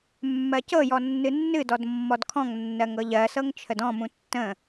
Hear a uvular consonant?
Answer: no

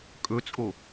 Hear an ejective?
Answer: yes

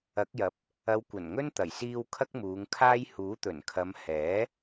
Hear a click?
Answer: no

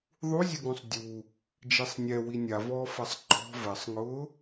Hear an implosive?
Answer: no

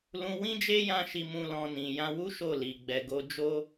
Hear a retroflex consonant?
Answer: no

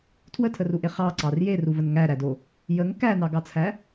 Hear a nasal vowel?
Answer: no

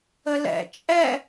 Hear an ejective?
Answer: yes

